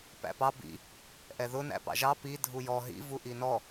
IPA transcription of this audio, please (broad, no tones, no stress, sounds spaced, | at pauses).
p æ̰ p ɑ b ḭ | ʔ ɛ ð ʊ n æ̰ p ɑ̰ ʒ ɑ p i dʱ u j ɔ ɦ ḭ v u ʔ i n ɔ